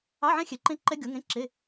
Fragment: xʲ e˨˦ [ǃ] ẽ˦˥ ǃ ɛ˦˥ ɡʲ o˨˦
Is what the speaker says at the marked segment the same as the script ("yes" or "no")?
yes